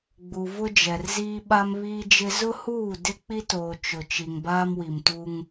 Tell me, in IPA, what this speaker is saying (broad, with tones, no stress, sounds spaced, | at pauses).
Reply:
ɡ͡b u˨ v ʊ˦ d͡ʒ ɛ˨ r z iː˦ ɓ a˦ m β iː˦ d͡ʒ ɪ˦ z ʊ˦ h uː˦˨ d ɪ˦ k͡p i˦ t oː˨ t͡ʃ ʊ˨ t͡ʃ i˨ ŋ b aː˦ m w i˨ m t u˦ ŋ